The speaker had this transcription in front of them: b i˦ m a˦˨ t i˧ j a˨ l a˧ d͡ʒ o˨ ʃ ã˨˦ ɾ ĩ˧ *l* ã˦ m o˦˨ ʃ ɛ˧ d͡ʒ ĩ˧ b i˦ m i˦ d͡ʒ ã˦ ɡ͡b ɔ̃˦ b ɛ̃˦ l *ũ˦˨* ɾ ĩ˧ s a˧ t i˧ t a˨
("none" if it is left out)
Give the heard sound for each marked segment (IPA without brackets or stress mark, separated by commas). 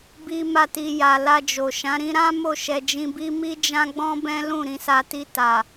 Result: ɾ, ũ˦˨